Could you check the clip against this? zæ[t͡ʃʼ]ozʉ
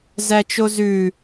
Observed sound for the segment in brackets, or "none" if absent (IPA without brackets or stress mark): t͡ʃ